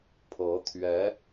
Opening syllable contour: rising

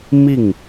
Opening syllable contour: falling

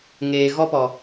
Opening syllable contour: low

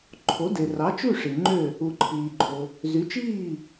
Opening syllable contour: rising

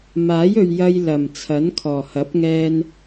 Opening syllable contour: rising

